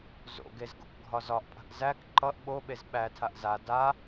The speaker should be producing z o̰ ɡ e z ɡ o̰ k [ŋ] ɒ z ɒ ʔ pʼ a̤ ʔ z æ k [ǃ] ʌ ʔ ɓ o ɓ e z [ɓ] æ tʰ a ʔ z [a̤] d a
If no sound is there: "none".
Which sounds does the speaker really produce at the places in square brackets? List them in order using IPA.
ɡʱ, ǃ, ɓ, a

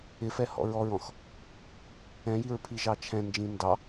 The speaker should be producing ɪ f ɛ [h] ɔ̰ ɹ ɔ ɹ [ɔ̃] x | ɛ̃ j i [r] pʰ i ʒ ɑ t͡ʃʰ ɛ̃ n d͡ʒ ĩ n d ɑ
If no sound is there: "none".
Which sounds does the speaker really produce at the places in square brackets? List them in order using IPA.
h, ɔ̃, ɹ

